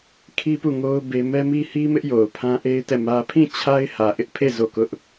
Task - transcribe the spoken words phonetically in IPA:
kʰ i˦ p u˦˨ ŋ o˦ ʊ̯ b e˦ m ɛ˦ m i˦ h i˦ m ɪ˦ ʔ j o˨ ʊ̯ pʰ ã˦ ʔ e˦ ɪ̯ t ɛ˦˨ m ä˦ pʰ ĩ˦˨ t͡ɕʰ a˦ ɪ̯ h ä˨ ʔ ɪ˦ ʔ pʰ e˦˨ z o˦˨ k ʊ˦ ʔ

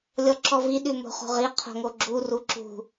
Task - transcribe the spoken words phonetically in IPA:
lʲ ɔ ǁ ɔ v i ɗ ʉ m o̤ χ o̤ ʁ i qʰ o̤ ŋ o ɡ͡ǁ u r u ǁ ṳ

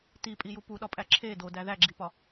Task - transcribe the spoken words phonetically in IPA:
t i pʼ i j u p u ɗ ɒ pʼ æ ǁʰ e d o d æ ð æ ɡ͡ǁ i p ɒ

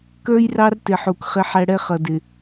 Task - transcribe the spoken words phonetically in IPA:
k ə˞˦ j r ɑ˦ r t ɪ˨ ħ u˨ k χ ɪ˦ ħ æ˦ ɽ ɛ˦ χ ʌ˨ d ɪ˨

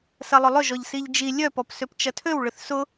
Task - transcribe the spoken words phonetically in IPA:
s ɐ lˠ ʊ lˠ ʏ ʒ ɔ ʎ s i ʎ d͡ʒ i lʲ œ p ɔ p s ø p t͡ʃ ɐ tʰ ø w ɭ ʏ θ s ʊ

